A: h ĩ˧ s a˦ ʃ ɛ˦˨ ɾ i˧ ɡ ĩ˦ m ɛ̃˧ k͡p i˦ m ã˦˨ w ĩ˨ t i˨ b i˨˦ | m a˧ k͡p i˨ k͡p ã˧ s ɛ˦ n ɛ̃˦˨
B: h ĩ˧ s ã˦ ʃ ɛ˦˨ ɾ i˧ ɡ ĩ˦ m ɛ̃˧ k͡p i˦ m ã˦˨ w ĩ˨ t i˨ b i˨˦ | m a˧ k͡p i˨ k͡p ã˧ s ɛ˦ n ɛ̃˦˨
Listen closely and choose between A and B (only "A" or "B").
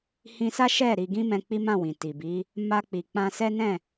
A